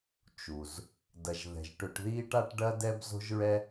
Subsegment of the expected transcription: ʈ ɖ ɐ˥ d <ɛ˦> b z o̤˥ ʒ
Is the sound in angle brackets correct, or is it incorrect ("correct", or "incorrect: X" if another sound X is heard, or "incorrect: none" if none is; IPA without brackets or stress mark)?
incorrect: ɛ˥